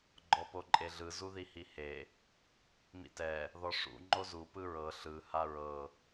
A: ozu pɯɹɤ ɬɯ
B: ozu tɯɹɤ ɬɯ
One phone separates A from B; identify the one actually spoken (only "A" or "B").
A